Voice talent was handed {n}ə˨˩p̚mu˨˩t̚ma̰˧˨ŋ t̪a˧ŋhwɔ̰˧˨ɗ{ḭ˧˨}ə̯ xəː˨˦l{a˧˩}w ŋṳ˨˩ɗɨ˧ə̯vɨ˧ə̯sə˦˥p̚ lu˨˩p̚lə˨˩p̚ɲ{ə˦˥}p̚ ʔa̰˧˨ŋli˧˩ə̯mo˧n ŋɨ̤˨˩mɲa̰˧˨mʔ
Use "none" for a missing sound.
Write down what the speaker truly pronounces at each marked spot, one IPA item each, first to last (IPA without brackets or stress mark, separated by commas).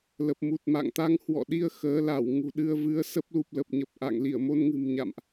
l, i˧, a˧˩, ə˨˩